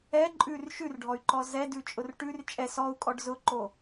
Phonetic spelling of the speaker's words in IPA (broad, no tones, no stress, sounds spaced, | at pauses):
ɛ ǃʼ ʉ r ʃ ʉ r ɖʱ ɔ y̯ ǃ ɔ z ɛ d ʉ t͡ʃʼ ʊ r ʈ ʉ r t͡ʃʼ ɛ s ɔ u̯ kʼ ɔ ɖ z ʊ ǃ o